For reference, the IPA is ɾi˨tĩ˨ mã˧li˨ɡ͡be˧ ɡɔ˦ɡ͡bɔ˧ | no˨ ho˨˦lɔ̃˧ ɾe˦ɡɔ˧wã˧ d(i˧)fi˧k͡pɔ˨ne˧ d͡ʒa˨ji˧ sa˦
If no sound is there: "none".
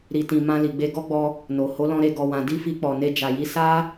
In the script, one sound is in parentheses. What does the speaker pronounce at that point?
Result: i˦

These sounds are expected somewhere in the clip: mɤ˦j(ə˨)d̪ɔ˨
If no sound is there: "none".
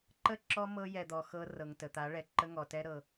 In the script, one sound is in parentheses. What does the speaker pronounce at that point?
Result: ɛ˨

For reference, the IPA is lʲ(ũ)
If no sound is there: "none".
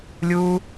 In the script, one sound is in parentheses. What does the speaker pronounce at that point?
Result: u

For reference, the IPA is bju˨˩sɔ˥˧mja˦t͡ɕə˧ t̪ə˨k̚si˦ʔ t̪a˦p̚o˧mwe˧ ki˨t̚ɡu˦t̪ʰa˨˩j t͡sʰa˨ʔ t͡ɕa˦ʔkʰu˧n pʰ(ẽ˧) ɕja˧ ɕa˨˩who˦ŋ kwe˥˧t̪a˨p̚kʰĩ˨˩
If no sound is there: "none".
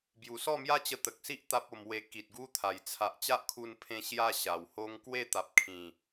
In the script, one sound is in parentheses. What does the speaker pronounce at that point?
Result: ẽ˧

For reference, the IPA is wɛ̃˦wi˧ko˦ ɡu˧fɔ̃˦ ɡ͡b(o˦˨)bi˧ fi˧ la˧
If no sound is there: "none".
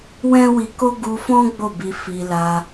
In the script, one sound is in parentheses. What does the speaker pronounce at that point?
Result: o˦˨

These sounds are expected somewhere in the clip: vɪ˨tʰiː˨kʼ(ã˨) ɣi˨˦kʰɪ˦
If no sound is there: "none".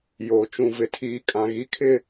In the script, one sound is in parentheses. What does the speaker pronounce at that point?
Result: ã˨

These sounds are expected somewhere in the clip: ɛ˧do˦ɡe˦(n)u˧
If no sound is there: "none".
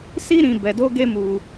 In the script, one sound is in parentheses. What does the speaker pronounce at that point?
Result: m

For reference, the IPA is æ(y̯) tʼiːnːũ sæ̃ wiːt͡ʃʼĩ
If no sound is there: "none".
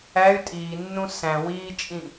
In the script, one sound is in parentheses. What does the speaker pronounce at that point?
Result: y̯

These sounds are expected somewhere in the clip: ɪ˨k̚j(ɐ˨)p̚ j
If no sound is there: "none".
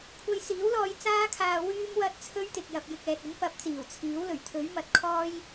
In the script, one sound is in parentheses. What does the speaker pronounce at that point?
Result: ɐ˨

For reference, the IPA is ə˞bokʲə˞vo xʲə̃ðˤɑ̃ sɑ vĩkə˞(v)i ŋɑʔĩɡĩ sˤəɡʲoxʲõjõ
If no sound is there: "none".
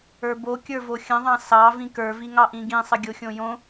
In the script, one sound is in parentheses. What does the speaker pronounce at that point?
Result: v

